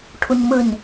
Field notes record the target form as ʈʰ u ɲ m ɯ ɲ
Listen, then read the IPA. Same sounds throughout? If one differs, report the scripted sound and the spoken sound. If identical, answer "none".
none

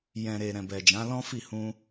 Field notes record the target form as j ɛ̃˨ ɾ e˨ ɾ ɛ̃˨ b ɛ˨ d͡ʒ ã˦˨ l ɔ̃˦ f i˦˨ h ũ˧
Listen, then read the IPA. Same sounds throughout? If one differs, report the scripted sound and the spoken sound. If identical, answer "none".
ã˦˨ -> ã˨˦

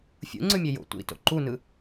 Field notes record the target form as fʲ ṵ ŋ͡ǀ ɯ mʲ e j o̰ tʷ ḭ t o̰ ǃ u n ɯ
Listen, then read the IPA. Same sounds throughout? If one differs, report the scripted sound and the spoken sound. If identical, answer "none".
none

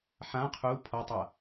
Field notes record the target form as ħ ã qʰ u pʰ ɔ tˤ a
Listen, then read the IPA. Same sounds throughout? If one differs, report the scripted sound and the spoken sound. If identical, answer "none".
none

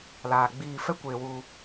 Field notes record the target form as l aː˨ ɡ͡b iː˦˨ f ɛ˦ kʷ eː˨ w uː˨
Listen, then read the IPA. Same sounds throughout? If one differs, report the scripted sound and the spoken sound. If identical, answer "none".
none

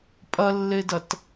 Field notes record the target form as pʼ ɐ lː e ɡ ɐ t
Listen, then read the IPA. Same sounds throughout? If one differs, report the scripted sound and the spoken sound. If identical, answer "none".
ɡ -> d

